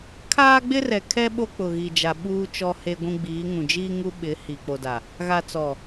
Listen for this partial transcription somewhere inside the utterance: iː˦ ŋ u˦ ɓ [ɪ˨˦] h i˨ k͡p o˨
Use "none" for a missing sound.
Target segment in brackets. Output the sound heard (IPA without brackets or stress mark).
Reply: ɪ˨˦